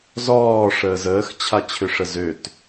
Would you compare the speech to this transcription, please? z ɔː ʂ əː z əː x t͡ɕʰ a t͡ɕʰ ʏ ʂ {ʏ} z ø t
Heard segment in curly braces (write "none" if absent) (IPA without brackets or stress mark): ə